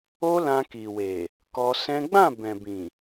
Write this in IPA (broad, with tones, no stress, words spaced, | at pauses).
o˦lã˧ki˨we˨ | kɔ˧sɛ̃˦ ɡ͡bã˦˨bɛ̃˨bĩ˨